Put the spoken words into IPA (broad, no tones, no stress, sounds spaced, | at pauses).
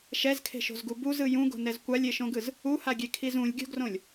ʃ ɛ z kʰ e̤ ʃ o̤ z ɡ u b u z ɯ j ũ ɡ o̤ n ɛ z kʷ a lʲ e ʃ õ ɡ ɯ z | u h a ɡʲ e kʰ i z ũ lʲ ɡʲ o̤ ɡ r õ lʲ